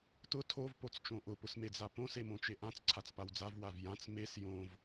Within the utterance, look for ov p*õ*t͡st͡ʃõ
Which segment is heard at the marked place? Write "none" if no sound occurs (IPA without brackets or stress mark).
o